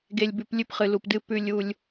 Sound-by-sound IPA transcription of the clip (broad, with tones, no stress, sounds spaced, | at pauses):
ɡ e˨ lʲ b ʉ˨ p lʲ ʉ˦ p χ ɨ˨ l u˨ p d ɨ˦ p ʉ˦ lʲ u˦ lʲ